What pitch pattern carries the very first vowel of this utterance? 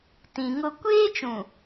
low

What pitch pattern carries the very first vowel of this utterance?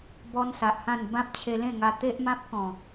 high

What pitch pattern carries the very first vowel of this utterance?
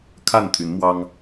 falling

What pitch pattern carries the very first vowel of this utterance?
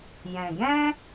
low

